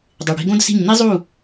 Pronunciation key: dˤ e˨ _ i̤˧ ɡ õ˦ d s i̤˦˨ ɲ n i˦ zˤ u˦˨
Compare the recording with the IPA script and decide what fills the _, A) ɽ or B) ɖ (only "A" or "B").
A